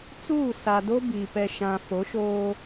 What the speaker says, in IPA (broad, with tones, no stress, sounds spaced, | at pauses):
t͡s uː˦˨ s a˨ d o˦ b i˨ p ɛ˨ ʃ ã˨ f o˨˦ ʃ oː˦